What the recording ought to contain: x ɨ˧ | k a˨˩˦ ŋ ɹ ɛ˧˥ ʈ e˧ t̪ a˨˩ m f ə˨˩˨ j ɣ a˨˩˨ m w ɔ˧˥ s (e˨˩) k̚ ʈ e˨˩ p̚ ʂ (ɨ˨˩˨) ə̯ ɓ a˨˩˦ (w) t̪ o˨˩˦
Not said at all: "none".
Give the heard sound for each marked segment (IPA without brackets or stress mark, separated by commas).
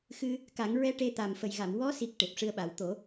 i˨˩, ɨ˧, w